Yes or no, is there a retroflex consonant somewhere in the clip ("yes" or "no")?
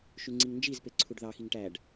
yes